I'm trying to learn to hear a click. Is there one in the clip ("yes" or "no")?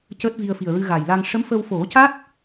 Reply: no